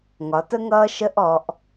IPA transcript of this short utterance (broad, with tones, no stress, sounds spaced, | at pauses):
ŋ ɒ˩˧ t ə˦ ŋ ʌː˦ ʃ ə˦ ʔ ɔ˩˧ ʔ